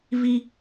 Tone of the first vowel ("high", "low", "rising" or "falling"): high